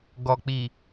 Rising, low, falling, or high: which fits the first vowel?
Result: low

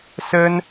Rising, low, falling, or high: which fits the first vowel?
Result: high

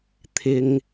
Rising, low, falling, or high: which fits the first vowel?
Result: low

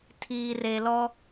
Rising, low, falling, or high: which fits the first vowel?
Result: low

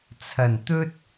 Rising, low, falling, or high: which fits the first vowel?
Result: low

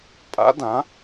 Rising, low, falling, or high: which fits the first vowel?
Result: rising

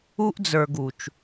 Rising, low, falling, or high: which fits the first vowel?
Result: high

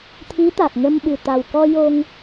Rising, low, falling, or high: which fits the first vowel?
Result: rising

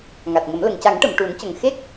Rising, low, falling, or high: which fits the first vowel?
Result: low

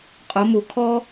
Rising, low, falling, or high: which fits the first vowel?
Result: rising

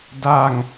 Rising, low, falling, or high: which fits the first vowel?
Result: low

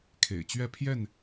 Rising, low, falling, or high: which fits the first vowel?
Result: low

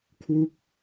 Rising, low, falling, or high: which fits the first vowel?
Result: falling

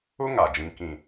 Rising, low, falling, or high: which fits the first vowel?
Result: high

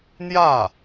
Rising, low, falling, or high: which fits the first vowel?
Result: falling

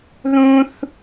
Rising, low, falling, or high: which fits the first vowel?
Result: high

